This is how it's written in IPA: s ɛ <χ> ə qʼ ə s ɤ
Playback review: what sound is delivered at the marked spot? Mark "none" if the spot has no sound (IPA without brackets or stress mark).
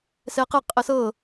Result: q